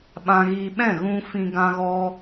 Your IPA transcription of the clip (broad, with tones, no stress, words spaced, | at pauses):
ɓã˧ɣiː˧ɓɛ̃˦˨ ɣũ˧ fĩ˧ɡã˧ɣɔ˧